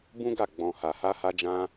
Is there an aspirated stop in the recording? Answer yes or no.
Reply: no